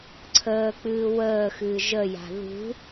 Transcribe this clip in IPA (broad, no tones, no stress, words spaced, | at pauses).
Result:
ǀʰəːk͡pɨː wəːxɨː ʒəja̤ ðṳ